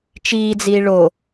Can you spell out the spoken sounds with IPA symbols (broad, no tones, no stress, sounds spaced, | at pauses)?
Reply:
t͡ʃ iː d͡z iː ɭ o